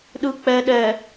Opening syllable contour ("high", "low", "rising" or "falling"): low